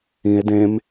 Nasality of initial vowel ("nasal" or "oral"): nasal